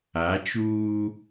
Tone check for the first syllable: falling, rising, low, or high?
rising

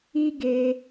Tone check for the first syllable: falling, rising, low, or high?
high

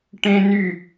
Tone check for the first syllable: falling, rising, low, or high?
high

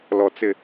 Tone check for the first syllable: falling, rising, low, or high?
low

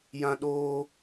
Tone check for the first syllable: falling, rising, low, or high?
high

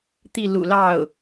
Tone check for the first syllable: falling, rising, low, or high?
falling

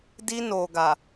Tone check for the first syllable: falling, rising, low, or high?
high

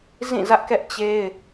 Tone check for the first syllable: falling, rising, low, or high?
falling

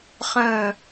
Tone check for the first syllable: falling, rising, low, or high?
falling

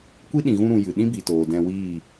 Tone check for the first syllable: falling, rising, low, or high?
high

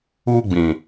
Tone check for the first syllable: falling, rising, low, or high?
high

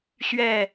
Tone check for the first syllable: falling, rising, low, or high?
falling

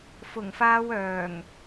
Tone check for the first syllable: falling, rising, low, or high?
low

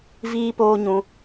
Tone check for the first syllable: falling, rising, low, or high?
high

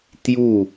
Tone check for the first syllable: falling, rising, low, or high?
falling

